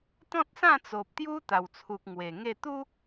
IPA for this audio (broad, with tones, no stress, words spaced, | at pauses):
t̪ɔ̃˦t̚sã˥˧t͡so˨p̚ t̪ju˦ t̪a˨˩wt͡sʰu˨k̚ ŋwe˨˩ŋe˥˧ t̪u˦